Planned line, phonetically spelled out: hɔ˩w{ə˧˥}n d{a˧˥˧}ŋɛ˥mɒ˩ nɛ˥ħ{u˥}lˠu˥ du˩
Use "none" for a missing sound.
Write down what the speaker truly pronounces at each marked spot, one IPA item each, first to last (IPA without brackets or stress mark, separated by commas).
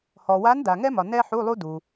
a˧˥, a˩, u˧˥˧